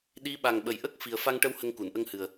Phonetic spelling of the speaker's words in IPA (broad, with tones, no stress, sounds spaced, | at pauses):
ɗ i˧˥ ɓ a˨˩ ŋ ɓ ə˨˩ j ʔ ə˦˥ k̚ f i˨˩ ə̯ f a˧ ŋ ʈ ə˧ w h ə˧ ŋ k u˨˩˨ n ʔ ə˧ ŋ h ɨ˨˩ ə̯